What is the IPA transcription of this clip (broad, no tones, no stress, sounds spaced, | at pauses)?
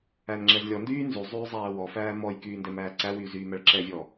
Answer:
æ n ŋ͡ǁ ɛ z lʲ ɔ n d yː n z y zˤ yː zˤ æː w ɔ f æː m ɔ j k yː n d ɛ m æː ǀ æ w yː z yː m æ ɭ ǁ ɛ vʲ ɔ